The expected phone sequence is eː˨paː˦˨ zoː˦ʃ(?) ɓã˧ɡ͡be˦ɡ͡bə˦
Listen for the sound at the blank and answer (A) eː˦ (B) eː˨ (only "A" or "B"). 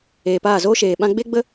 B